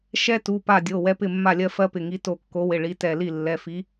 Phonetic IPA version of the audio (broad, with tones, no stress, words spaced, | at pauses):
ʃɛ˦tu˩˧˩pa˧˩dʲo˩˧˩ wɛ˦pɪ˥˩mːa˥˩lʲɜ˦ fɜ˦pɪ˩˧˩ŋi˨˥ to˧˩kːo˨˥wɪ˩˧˩ ɭi˨˥tɛ˧˩li˥˩ lːɛ˩˧˩fi˨˥